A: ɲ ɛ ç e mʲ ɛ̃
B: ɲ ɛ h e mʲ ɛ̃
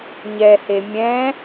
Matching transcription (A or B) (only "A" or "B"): B